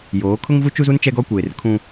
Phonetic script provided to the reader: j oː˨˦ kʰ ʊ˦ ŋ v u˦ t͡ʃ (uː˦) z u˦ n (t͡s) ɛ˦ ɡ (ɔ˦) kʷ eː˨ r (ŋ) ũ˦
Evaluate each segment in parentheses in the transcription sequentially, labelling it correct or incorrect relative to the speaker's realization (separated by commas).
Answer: incorrect, incorrect, correct, incorrect